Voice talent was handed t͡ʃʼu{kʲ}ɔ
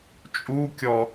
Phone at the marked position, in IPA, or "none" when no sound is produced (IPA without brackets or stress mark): kʲ